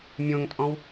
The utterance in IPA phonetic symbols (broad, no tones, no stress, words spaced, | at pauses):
mʲõŋtʼɔ̃w